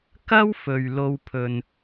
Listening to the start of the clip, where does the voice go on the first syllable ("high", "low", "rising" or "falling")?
high